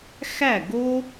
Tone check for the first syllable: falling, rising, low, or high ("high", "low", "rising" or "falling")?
falling